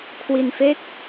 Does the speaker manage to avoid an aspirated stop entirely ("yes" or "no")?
no